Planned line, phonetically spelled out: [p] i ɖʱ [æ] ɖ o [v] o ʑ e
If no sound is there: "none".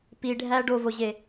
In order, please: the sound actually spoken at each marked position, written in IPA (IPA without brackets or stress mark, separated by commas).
p, æ, v